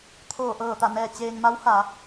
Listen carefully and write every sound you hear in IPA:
t̪ʰ oː˧˩ ʔ ɤː˧˩ t̪ a˧˩ n ɛː˧˩ t͡ɕ eː˧ ŋ m a˧˥ w h a˩˧

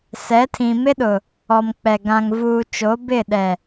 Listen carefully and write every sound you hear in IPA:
s ɛ˨˦ tʰ ĩ˨ m ɪ˦ ɗ ʊ˨ | ɔ˨ m k͡p ɛ˨ ɡ ã˨ ŋ v uː˨ t͡ʃ o˨˦ b ɪ˦˨ ɗ ɛ˨

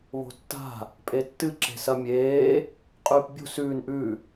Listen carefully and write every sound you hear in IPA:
β o̤ tː a̤ | pʼ e tː ɨ ǁ e̤ s ɐ mʲ eː | qʼ ʉː p bʲ ṳ s ʉː n ʔ ʉ

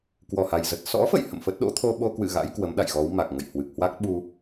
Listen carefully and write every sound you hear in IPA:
k w ɔ˧˩ h a˨˩ j z ə˨˩ t̚ s ɔ̰˧˥ f ə̰˧˨ j h ə̰˧˨ m f ə˦˥ t̚ ɗ o̰˧˥ t̪ʰ o˧ ɓ o˧ k w ɨ̰˧˨ ɣ a̰˧˥ j k w ə˨˦ m ɗ a̰˧˨ j ɣ ɔ˨˦ w m a˨˩ k̚ ŋ ə̰˧˨ j h w ɨ˨˩ k̚ h w a˦˥ k̚ ɓ u˧

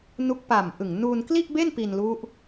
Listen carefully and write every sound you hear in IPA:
n u˦˥ k̚ p a˨˩ m ʔ ɯ˨˩ ŋ n uː˧ n k l i˥˩ ʔ b e˥˩ n p i˧ n l u˦˥ ʔ

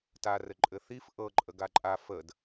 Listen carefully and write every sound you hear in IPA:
t a r ɘ ǃʼ ɘ θ i f ʔ ɤ ǃʼ ə ɡ a ǃʼ a f ə d

